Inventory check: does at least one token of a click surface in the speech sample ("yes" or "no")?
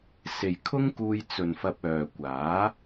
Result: no